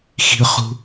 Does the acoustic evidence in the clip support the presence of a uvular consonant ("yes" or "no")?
yes